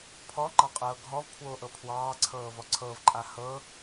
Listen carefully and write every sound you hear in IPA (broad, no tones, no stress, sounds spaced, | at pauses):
pʰ ɔ ŋ͡ǃ ɑ qʼ ɤː ɡʱ ɔ v pʰ w oː ʔ ɤ pʰ w ɑː ǀʰ ɤː v ɔ ǀʰ ɤ v ǃʼ a h ɤ